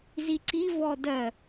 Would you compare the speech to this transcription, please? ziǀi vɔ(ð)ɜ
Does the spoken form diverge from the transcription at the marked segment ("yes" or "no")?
yes